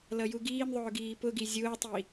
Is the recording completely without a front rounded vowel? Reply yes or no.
yes